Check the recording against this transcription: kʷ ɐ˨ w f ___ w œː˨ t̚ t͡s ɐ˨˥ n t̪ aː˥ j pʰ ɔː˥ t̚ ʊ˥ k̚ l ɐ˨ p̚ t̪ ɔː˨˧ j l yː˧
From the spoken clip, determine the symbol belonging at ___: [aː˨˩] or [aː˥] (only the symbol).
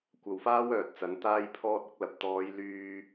aː˥